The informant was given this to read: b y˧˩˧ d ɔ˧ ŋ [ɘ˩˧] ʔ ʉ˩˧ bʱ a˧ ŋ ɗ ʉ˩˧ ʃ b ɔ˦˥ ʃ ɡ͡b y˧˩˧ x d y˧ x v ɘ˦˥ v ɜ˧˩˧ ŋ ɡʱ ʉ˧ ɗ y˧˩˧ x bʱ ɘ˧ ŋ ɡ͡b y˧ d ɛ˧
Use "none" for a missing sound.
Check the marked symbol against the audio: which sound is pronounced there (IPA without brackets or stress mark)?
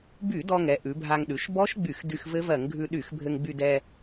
ɛ˩˧